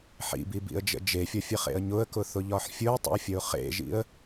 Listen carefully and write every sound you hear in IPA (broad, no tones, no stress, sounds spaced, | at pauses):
ħ ḭ b i b ḭ ə̯ d͡ʒ ə̰ d͡ʒ e fʲ ɒ fʲ ə χ ḛ ə̯ ɲ ʊ ə̯ k ʊ θ ʊ ʎ ɒ ħ fʲ ʊ ə̯ tˤ ə̰ ʊ̯ fʲ ə ʊ̯ χ ḛ ʒ ḭ ə̯